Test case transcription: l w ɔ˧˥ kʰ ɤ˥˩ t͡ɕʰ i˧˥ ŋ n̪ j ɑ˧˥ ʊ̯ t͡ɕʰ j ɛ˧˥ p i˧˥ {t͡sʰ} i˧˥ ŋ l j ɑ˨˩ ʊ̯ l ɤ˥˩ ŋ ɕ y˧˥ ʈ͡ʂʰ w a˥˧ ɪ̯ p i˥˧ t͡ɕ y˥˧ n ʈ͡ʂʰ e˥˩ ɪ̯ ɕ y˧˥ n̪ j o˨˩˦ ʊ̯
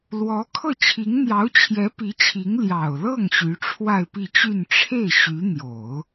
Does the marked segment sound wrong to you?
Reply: yes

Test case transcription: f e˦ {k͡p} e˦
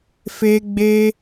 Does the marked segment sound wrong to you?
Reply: yes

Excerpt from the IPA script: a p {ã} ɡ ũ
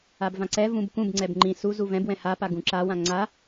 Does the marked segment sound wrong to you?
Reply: yes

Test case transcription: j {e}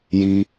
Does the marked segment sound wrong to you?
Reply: yes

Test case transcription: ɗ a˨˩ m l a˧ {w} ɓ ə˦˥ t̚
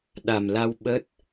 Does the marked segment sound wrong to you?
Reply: no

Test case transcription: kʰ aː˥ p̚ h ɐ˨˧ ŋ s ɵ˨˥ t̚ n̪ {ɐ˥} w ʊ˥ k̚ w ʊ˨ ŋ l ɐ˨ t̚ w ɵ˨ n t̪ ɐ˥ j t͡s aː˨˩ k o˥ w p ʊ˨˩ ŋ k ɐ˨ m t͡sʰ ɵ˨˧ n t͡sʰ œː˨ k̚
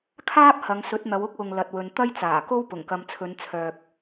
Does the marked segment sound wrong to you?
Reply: yes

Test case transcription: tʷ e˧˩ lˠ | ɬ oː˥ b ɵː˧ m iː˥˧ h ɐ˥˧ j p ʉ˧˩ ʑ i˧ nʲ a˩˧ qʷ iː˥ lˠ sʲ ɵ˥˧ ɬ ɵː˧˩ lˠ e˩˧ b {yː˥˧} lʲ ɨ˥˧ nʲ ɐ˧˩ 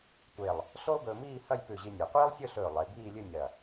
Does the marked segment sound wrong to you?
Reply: yes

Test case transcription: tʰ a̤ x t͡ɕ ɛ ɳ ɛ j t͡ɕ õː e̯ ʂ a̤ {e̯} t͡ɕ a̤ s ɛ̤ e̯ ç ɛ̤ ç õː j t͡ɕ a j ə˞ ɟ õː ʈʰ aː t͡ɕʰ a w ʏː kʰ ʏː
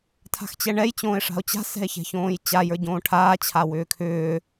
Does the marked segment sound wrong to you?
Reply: yes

